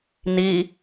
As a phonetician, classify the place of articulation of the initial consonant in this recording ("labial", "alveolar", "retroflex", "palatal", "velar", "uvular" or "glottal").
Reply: alveolar